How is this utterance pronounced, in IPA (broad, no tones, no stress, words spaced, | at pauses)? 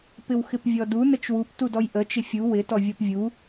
pɪwxɪpvʲɔdu nət͡ʃwup tudɔjʔə t͡ʃɪfʲu wɪ tɔvʲɔpvʲu